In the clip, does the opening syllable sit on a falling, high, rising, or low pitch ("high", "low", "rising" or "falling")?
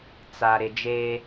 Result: low